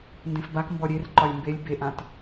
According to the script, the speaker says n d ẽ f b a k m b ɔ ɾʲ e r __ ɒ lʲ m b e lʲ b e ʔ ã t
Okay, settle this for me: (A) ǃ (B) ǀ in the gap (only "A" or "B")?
A